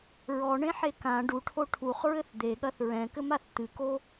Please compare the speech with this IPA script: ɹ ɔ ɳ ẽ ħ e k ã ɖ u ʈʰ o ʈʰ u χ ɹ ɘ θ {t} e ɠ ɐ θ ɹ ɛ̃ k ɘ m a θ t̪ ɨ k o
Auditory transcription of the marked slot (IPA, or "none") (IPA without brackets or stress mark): d̪